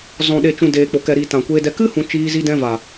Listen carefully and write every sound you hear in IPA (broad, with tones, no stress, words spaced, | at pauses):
zɔ̃˨ɗe˨t͡ʃũ˨ deː˨k͡po˨ kɛ˨ɾiː˨ tã˨kʷeː˧dɛ˧ kɨ˦hũ˨ t͡ʃiː˧ zi˧ dɛ̃˧ va˨